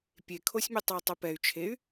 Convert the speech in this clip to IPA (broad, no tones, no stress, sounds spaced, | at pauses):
pʲ e kʰ o sʲ mʲ u tˤ e i̯ tˤ ɨ p ɛ y̯ t͡ʃʰ e y̯